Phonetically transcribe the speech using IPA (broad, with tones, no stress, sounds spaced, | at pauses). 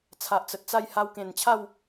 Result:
t͡sʰ a˨ ʔ t͡s ə˨ t̚ t͡s a˥˧ j h a˧ w k ẽ˨˩ n t͡ɕʰ a˥˧ w